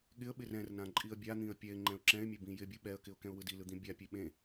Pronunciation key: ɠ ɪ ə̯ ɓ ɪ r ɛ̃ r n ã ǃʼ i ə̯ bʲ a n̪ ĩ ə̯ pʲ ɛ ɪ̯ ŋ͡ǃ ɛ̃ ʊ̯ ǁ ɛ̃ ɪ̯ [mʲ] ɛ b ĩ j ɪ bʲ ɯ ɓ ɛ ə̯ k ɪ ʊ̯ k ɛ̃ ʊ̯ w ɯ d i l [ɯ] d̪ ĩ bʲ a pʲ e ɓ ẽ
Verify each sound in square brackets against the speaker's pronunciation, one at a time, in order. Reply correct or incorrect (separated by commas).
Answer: correct, correct